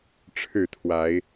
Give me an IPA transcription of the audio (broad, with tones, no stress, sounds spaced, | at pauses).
ʈ͡ʂʰ ɻ̩˥˨ t̪ʰ w a˨˦ ɪ̯